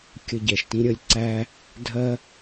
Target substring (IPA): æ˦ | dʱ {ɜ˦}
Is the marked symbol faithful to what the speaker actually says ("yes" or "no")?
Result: yes